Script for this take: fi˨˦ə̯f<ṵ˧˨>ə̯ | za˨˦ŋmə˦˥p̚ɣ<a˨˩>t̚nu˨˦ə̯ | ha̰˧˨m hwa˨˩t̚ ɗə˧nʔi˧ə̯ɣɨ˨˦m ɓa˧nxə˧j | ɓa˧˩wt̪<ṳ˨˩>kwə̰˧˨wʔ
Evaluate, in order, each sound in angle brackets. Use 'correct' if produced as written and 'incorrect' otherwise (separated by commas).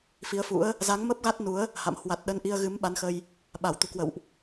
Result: incorrect, incorrect, correct